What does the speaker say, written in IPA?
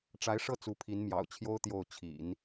ʈ͡ʂ a˧˥ ɪ̯ ʂ ɤ˥˩ t͡s u˧˥ pʰ i˧˥ n m j ɑ̰˨˩ ʊ̯ t͡ɕʰ j o˥ ʊ̯ t̪ j o˥˩ ʊ̯ t͡ɕʰ ḭ˨˩˦ n

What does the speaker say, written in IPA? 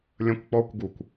lʲ ə̃ kʷ k͡p ɔ kʷ ɡ u kʷ

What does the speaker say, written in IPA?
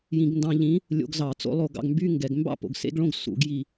j ĩ˧˩˧ ɡ n d ɑ̃˧ ʎ ĩ˨˥ | lʲ o̰˧ ɡ z ɑ˧˩˧ t͡s o̰˧ lˠ o˧˩˧ ɡ ɑ̰˧ ɡ m b y˧˥˧ ŋ ɡ ɛ˧˩˧ ɡ m b ɑ̰˥˧ p o̰˧˩ ɡ s ḛ˧˥˧ ɡ ɭ õ˧˥˧ ɡ s ṵ˧˩˧ ɡ j i˧˩

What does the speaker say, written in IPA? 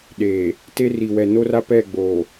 ɗ eː˨ | t e˦ r i˨ w ɛ˨ n o˦ r a˦ p ɛ˦˨ ɡ͡b oː˨

